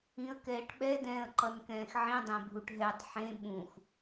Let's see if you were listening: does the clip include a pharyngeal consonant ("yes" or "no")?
yes